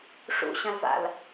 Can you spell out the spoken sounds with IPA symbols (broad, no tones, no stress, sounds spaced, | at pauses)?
ʂ ṵ ɕ ɐ̃ l v a̰ l